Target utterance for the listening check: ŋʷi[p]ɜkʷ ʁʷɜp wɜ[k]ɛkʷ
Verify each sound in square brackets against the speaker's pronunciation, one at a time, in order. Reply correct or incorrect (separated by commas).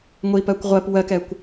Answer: correct, correct